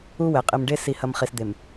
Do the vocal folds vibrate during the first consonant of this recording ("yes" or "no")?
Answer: yes